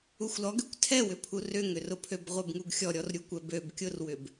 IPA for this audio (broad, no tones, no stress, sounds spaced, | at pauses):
u xʷ l ɔ ɡ ø kʷ tʰ ɛ w ʏ pʰ u r ʏ ŋ ʏ r ʊ pʰ ø b ʁʷ ɛ b ŋ u ɡ xʲ ɔ ɾʲ ɔ r ɾʲ u kʷ ɛ b ø b kʲ ʊ r w ʏ b